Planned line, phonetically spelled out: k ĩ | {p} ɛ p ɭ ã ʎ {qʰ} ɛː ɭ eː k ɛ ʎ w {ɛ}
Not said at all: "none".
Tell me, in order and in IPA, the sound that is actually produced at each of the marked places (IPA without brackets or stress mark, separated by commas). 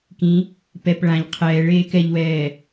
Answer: p, qʰ, ɛː